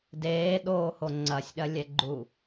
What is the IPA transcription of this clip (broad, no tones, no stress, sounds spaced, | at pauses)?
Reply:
d eː ɗ oː h o ŋ͡ǀ ɐ sʲ ɗ ɐ lʲ ɛ ɡ͡ǃ u